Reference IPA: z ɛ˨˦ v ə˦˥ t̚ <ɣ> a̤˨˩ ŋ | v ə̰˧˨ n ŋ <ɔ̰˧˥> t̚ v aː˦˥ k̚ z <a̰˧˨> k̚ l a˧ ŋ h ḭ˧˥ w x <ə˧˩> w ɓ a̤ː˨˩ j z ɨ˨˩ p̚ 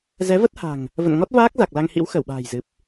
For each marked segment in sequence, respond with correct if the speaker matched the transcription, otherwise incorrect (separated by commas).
incorrect, incorrect, incorrect, correct